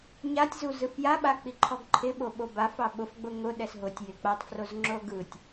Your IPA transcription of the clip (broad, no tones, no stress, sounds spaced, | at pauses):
ɲ a tʲ z u z ɯ f j a ɓ a k͡p i ǃʰ ɔ ɡ ǃʰ ɪ ɓ o ɓ o b a f ɑ ɓ ʊ f ɡ͡b ʊ ŋ ʊ ɗ ɛ s ɦ ʊ tʲ j ɪ k͡p a tˤ f r o z ŋ͡ǁ o ɡ ɯ tʲ